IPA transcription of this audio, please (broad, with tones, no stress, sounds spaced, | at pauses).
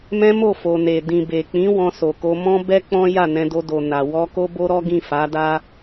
m ɛ̃˦ m o˦˨ f o˨ n e˨ d ĩ˨ b e˨ k͡p ĩ˨˦ w ɔ̃˧ s o˨ k o˧ m ɔ̃˦ b ɛ˦ k͡p ɔ̃˦ j a˦˨ n ɛ̃˧ d o˧ d o˨ n a˨ w ɔ˧ k o˦ b o˦ ɾ ɔ˦ ɡ ĩ˦˨ f a˨˦ d a˦